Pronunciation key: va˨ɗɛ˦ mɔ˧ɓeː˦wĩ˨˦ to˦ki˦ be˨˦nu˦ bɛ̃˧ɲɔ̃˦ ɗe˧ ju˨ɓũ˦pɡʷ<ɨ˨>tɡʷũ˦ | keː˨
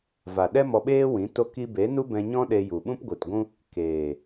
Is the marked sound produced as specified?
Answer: yes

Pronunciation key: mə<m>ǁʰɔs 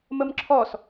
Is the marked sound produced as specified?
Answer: yes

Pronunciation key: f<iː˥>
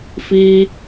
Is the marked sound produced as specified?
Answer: yes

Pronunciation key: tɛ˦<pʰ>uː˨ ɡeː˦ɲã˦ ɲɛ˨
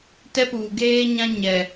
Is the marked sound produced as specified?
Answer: no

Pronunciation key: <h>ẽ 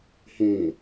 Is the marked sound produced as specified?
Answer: yes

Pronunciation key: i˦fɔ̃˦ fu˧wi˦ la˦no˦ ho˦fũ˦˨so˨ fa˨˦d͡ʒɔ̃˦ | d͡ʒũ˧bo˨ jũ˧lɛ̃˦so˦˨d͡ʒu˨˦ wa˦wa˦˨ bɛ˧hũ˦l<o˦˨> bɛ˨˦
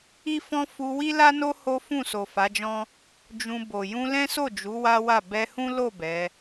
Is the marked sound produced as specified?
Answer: yes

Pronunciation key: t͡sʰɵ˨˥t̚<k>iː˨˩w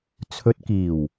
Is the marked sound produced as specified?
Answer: yes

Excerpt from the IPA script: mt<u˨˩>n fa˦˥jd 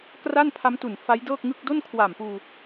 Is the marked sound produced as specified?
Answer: yes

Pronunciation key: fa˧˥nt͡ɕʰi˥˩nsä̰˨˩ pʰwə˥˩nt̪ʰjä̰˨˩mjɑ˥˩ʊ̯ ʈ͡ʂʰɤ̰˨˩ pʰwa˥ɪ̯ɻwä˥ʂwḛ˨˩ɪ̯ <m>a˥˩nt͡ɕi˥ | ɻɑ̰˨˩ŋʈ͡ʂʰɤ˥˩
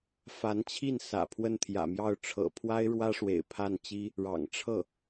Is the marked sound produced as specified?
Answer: no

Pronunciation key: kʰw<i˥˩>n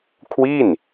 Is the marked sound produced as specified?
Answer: yes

